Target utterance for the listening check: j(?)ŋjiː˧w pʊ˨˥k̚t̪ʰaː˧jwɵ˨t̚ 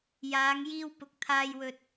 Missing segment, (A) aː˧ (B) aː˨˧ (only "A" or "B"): B